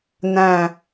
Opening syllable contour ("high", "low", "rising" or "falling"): low